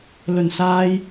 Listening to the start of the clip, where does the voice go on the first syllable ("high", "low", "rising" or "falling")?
low